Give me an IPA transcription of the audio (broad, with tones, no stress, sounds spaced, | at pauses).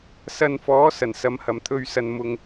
s ɐ˧ n f ɔː˨˥ s ɐ˨˩ n s ɐ˨˧ m h ɐ˨˩ m t̪ʰ ɵ˧ ɥ s ɐ˨ n m ʊ˨ ŋ